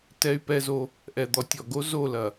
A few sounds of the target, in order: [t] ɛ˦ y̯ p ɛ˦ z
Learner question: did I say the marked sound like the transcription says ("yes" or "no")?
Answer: yes